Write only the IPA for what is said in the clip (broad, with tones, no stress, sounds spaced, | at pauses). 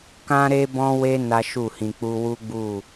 k ã˦ ɾ e˦ b ɔ̃˦ w e˦ n a˦ ʃ u˦˨ h ĩ˧ k͡p u˦ w u˦ ɡ͡b u˦˨